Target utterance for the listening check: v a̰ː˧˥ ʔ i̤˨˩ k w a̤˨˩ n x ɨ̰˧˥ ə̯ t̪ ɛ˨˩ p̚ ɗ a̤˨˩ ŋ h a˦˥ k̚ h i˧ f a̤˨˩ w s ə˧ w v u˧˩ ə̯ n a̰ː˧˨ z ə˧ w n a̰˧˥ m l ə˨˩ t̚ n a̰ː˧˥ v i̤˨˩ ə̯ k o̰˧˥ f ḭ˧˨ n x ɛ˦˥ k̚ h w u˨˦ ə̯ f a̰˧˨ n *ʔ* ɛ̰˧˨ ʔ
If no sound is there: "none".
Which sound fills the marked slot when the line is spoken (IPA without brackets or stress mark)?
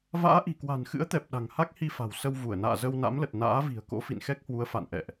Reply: ʔ